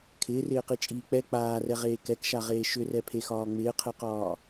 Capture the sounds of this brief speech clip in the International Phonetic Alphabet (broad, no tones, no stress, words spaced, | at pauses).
kʰɪːrɪːqit͡ʃʼiː k͡pɛ k͡paːrɛʁeː kɛkʃaʁeː ʃʏrɛpʰexɒː ŋ͡mɪːqʰɛqɒː